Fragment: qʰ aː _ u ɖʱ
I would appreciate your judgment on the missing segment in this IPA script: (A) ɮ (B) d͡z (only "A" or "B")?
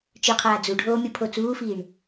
B